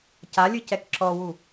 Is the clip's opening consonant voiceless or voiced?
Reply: voiceless